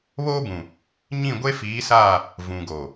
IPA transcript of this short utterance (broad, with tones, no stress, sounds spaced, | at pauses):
β oː˦ b ũ˨ | ɲ ĩ˦˨ ɡʷ e˦ f iː˨˦ s aː˦˨ | v ũ˨ ɡ o˨